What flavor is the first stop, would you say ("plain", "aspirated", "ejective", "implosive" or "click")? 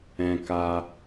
plain